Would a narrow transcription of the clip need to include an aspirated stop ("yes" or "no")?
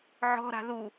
no